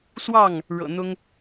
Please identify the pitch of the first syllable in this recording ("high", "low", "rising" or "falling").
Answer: falling